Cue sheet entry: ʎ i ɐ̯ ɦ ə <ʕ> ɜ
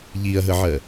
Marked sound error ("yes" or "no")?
no